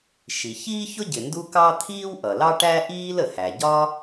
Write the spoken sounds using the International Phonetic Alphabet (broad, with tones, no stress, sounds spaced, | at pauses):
ʃ i˩ ç iː˥ ç ʊ˥ ɟ ɪ˩ n d u˥ k ɑ˥ t̪ʰ iː˥ w ʔ ʌ˩ l ɑ˥ ʈ æ˥ ʔ iː˥ l ə˩ h æ˩ ɟ ɒ˥